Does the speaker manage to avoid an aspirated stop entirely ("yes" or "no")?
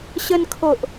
no